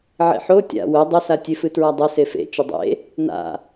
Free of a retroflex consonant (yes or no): yes